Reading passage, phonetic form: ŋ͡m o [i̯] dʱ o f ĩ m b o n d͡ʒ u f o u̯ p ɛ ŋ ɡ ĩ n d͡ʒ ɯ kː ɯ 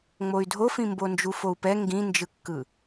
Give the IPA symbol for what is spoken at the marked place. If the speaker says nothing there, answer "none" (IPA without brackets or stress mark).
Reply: y̯